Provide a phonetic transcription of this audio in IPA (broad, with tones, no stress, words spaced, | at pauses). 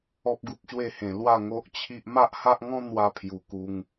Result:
ɔ˦p̚ɡu˦p̚ɕwe˥˧hẽ˧ lwa˥˧ŋo˦ʔt͡ɕʰi˦ʔ ma˦ʔha˦ʔŋɔ̃˦ n̪wa˦pʰju˧ ku˧ŋ